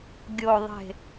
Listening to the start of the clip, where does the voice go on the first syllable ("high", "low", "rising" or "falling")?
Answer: low